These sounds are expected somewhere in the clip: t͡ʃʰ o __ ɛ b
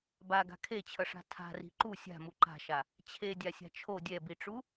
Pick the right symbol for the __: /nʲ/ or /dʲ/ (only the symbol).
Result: dʲ